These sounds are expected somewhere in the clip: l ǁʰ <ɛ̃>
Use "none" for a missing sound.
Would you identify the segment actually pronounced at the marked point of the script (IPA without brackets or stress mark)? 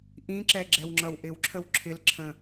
ə̃